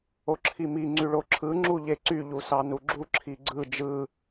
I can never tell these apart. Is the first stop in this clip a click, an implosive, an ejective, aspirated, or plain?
click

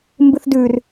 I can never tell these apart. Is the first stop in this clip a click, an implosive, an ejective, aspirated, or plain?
plain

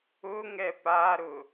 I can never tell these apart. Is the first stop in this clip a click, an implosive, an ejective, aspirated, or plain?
plain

